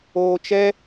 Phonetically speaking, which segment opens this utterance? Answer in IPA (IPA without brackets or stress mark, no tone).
oː